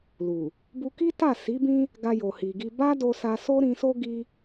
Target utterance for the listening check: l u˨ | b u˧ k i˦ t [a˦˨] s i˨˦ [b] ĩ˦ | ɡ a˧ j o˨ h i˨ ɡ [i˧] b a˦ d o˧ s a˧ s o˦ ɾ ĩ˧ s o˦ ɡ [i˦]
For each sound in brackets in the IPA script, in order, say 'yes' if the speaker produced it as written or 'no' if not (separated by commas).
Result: yes, yes, yes, yes